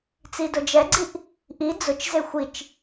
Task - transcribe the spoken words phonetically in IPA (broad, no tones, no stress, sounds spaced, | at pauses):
t͡s i d ʊ d͡ʒ ɛ ɡ͡ǀ i ʔ | ʔ i d͡z ʊ t͡ʃ z e xʷ i t͡ʃ